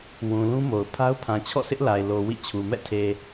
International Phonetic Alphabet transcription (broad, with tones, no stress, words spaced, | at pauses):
wũ˨lũ˦mo˨ʊ̯pʰa˦ʊ̯ pʰã˨t͡ɕʰɔ̰˦˨sɪ˦ʔ la˨ɪ̯lo˨ wḭ˦˨t͡ɕʰu˨ mɛ̰˦˨tʰe˨